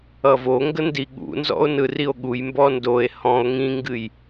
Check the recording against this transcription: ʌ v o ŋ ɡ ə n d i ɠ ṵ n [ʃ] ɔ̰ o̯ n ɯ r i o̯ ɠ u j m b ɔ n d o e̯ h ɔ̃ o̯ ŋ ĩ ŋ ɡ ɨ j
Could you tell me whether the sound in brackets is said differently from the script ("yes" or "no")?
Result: yes